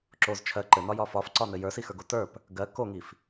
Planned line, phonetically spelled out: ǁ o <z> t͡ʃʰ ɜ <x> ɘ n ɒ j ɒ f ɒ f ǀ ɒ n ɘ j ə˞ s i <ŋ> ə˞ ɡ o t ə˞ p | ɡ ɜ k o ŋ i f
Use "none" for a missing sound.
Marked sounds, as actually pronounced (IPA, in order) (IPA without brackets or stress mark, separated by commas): z, ǃ, x